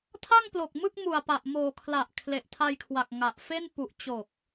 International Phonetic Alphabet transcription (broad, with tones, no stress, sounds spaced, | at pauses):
tʰ a˥˩ ŋ p l o˨˩ k̚ m ɯ˥˩ k̚ m u˨˩ a̯ p a˨˩ ʔ m oː˨˩ kʰ l a˨˩ ʔ kʰ l e˨˩ ʔ tʰ a˧ j kʰ w a˨˩ k̚ ŋ a˨˩ ʔ f e˥˩ n p u˨˩ ʔ t͡ɕ o˨˩ k̚